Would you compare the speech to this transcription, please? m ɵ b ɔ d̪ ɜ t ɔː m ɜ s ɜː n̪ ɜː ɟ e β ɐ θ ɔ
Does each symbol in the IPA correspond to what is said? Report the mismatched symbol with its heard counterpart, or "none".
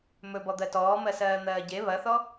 none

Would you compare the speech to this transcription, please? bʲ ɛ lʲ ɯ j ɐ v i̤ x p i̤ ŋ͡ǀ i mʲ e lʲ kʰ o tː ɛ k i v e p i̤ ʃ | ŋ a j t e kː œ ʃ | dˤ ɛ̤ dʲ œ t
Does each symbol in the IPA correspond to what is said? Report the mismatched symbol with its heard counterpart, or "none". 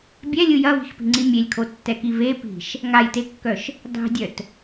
none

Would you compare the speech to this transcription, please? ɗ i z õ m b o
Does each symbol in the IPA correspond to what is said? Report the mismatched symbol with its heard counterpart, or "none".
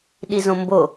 none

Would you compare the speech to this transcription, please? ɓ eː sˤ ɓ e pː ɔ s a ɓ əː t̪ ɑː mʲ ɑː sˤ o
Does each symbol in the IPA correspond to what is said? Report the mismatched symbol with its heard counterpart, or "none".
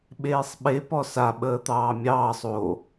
pː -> p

